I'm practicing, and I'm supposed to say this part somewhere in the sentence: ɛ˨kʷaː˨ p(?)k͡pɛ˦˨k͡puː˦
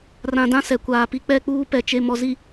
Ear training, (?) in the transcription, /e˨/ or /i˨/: i˨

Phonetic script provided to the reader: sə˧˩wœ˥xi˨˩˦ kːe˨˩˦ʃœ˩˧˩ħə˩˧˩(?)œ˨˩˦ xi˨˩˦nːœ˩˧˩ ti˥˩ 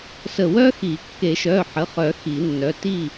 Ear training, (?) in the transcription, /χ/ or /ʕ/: χ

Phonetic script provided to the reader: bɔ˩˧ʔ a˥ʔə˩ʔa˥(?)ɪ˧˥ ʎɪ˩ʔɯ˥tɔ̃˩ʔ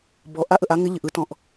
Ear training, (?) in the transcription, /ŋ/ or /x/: ŋ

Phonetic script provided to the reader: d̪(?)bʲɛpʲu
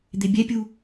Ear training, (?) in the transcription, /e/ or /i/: e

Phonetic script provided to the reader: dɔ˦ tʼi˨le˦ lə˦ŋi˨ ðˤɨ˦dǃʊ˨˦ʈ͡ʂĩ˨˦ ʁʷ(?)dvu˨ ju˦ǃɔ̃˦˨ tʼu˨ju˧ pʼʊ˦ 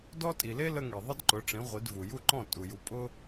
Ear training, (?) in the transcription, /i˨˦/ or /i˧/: i˨˦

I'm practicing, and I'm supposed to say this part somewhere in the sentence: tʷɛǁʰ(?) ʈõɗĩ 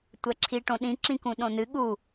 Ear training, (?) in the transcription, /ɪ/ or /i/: i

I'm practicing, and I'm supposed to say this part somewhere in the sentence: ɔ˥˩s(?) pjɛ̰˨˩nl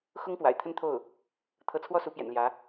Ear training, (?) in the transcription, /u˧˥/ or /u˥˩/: u˧˥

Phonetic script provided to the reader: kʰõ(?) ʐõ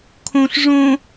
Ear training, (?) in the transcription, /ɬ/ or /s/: ɬ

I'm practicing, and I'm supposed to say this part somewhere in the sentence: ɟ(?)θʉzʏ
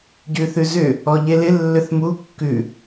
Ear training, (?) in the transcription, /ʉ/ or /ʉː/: ʉ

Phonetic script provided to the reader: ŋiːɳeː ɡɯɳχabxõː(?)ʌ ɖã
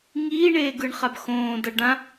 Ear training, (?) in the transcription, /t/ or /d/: d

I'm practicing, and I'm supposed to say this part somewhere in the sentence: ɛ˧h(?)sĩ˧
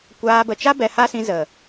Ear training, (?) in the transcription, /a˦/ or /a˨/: a˦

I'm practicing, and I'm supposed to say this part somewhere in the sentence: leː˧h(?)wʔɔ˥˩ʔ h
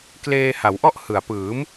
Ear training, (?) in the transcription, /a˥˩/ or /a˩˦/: a˩˦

